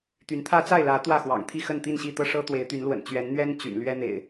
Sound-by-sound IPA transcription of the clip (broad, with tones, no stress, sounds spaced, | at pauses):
t̪ y˨˦ n t̪ʰ ä˦ t͡s a˥˨ ɪ̯ l ä˨˦ t̪ w ä˥˨ x w ɑ̰˨˩ ŋ t̪ʰ i˥˨ x ə˥˨ n t̪ i˥˨ n ɕ i˥˨ t̪ ɤ˥˨ ʂ ɤ˦ t̪ w e˨˦ ɪ̯ t̪ y˨˦ n l w ə̰˨˩ n t͡ɕ ɥ ɛ˨˦ n n̪ ɥ ɛ˦ n t͡ɕ y̰˨˩ n l ɥ ɛ˦ n̪ ḛ˨˩ ɪ̯